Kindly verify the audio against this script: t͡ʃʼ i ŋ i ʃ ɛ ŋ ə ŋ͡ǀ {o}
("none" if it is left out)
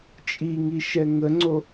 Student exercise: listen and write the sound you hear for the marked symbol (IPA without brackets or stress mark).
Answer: o